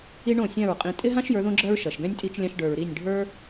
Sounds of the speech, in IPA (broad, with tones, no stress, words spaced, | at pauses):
i˦ɳõ˦˨sʲã˦˨ɹqʼĩ˧ tʼɪ˦ɦã˦ʃ jə˞˨˦ðõ˦ɡ͡ǁɜ˦ɹ ʃɜ˨ʃ ɡɛ̃˦nʲtʼi˧t͡ʃlʲã˧ʃ ɖə˞˨ɹɾi˦˨nʲɖʱə˞˦